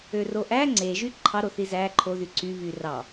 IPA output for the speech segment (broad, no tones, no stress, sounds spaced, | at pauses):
ø r o ʔ æ ŋ͡ǀ e ʒ y ǃʰ ɑ ɾ o θ i z æ ǃʰ o ð y ǀ y β y r ɑ